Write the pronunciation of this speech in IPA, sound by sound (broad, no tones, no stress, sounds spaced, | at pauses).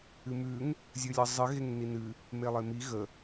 ɨ m ʉ ŋ | zʲ ɨ lʲ ɤ zˤ ɨ ɣ e ŋ n i n ɨ | m e lˠ e m i ɣ ə